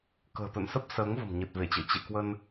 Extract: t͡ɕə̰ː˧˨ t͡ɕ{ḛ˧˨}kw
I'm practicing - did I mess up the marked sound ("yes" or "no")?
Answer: no